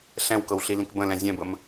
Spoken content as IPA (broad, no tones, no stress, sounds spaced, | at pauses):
ɬ ɛ̃ w k ɤ w ɬ i l ĩ k b ə̃ l ɛ̃ zʲ ɛ̃ b ə m